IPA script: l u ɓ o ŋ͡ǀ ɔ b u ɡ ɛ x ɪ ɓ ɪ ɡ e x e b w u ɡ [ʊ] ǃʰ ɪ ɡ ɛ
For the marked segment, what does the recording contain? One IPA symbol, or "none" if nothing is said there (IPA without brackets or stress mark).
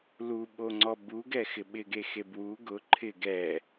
ʊ